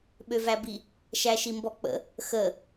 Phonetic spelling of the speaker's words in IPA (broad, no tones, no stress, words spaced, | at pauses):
ɓøvæbi | ʃæʃimbɔk͡pə̰ | xə